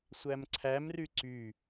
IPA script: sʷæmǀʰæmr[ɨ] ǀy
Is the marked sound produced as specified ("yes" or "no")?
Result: no